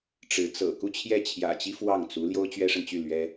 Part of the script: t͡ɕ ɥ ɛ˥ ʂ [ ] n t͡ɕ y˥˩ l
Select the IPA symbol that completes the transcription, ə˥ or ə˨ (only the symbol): ə˨